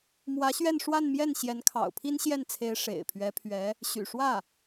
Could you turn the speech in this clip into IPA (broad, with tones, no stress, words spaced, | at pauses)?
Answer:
mwä˧˥ɕɥɛ˥˧nʂwa˥˧nmjɛ˥˩n ɕjɛ˧˥n kʰɑ̰˨˩ʊ̯pʰi˥nɕjɛ˥˩nt͡sʰe˧˥ɪ̯ ʂḛ˨˩ɪ̯ pʰɥɛ˧˥pʰɥɛ˧˥ | ɕy̰˨˩ʂwä˥˩